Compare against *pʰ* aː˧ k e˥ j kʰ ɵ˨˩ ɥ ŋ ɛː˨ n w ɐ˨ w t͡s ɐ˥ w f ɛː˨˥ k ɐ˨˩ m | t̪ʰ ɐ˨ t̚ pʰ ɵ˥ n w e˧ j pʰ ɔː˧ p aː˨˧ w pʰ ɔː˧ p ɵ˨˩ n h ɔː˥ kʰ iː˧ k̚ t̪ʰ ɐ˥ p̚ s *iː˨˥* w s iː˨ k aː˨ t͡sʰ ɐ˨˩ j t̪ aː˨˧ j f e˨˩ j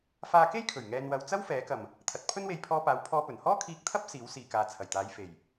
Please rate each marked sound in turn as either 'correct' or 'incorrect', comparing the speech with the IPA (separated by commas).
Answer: incorrect, correct